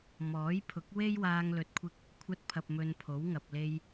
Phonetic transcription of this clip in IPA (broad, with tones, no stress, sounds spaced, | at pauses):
m ɔː˨˥ j pʰ ʊ˨˥ k̚ w e˥ j w aː˧ ŋ l ɵ˨ t̚ kʷʰ ɪ˧ k̚ | kʷʰ ɐ˧ t̚ pʰ ɐ˨ p̚ m ɵ˧ n pʰ o˨˥ w ŋ ɐ˨ p̚ l e˧ j